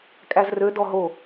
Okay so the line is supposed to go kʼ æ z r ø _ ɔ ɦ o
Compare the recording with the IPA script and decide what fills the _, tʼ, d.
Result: d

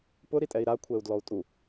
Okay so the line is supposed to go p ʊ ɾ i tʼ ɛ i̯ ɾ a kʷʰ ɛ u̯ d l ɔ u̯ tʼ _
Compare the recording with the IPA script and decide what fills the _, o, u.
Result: u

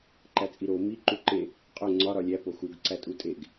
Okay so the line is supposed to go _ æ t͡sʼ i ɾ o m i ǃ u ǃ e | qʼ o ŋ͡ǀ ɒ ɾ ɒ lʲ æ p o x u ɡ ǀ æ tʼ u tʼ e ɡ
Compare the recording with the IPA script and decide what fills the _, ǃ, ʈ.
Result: ǃ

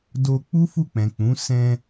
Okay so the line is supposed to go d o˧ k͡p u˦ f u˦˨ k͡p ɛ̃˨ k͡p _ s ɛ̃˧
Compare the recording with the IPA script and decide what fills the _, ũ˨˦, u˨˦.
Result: ũ˨˦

